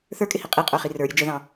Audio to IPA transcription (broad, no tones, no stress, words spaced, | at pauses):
θə˞kʼɪhi qʼiqʼə˞χi rə˞ɾʲə d͡ʒəðɑ̃